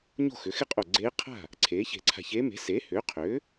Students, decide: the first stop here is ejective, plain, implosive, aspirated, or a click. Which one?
ejective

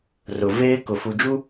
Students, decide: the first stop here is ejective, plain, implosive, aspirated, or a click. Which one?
plain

